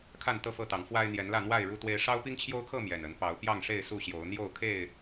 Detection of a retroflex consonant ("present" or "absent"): present